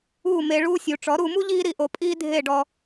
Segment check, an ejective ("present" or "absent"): present